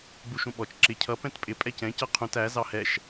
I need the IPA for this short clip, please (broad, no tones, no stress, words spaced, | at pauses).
ɡ͡buʃũɓɔt͡ʃ ǁɪ cʰʌ pɛ̃tpʼɪ pʼɛcɛ̃ cʌqʰũt æ zɑhɛʃ